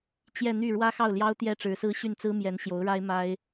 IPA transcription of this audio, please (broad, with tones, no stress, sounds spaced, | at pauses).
t͡ɕ j ɛ˥˧ n̪ y˥˩ ɻ w ä˥ x ɑ˥˩ ʊ̯ l j ɑ˥ ʊ̯ t̪ j ɛ˥ ʈ͡ʂ ɻ̩˧˥ s ɹ̩˥ ɕ y˥˩ n t͡s ɹ̩˥ m j ɛ˧˥ n ɕ j o˧˥ ʊ̯ ɻ a˥ ɪ̯ m a˥ ɪ̯